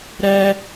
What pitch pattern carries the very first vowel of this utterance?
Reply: high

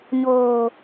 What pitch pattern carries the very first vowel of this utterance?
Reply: low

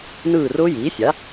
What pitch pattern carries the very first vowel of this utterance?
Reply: falling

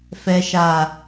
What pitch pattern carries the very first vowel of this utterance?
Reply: low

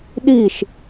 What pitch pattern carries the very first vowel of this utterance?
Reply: falling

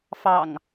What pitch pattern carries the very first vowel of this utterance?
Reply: low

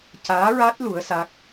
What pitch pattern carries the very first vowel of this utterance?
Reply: rising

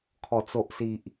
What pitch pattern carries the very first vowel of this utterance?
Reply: low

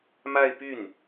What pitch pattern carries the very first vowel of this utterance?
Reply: falling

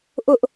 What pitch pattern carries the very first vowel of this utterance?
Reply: high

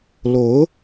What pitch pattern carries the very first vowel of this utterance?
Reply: rising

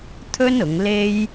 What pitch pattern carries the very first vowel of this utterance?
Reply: high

